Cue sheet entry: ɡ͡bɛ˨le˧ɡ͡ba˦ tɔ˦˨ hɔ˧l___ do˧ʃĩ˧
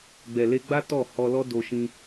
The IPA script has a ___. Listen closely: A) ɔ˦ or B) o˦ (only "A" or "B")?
A